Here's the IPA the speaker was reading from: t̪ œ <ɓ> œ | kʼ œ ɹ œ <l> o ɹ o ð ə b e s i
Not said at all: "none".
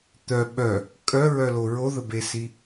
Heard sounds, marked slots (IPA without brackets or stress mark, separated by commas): ɓ, l